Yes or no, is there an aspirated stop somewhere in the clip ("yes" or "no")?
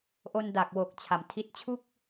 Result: yes